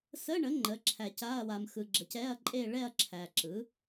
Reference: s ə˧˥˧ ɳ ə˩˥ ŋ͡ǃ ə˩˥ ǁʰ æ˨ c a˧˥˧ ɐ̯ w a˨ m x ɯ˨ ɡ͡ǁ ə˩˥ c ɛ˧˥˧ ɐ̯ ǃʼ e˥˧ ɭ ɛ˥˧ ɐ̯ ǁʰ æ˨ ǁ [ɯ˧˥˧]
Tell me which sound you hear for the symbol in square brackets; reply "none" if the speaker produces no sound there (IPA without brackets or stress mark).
ɯ˩˥